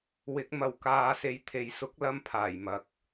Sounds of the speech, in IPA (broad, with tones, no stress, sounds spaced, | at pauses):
w ɪ˨˥ k̚ m ɐ˨ w k aː˨ s e˨˧ j t̪ʰ e˨ j s ʊ˨˥ k̚ l ɐ˧ m pʰ aː˨˩ j m ɐ˨ k̚